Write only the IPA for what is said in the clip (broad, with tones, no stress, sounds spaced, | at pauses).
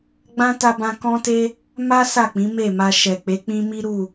ɡ͡b ã˦ t a˧ b ã˧ k ɔ̃˦ t e˦ | m a˦ s a˦˨ k͡p ĩ˨˦ m e˦˨ m a˧ ʃ ɛ˨ k͡p e˨˦ k͡p ĩ˦ m i˦ ɾ u˦˨